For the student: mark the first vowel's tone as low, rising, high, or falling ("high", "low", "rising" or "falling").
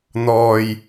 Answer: low